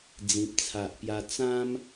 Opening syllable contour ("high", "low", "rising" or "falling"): low